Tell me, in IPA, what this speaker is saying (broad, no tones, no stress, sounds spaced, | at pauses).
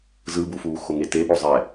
z ɯ b u f uː x o ŋ e t e ɓ o zˤ ɛ